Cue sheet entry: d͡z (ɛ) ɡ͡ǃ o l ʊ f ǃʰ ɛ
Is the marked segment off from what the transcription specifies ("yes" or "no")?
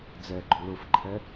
no